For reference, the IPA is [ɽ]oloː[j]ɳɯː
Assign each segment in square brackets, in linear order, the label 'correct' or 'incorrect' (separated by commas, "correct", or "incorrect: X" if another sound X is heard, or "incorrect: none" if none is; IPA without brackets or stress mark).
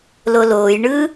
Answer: incorrect: l, correct